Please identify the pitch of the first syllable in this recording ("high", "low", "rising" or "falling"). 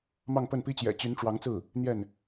falling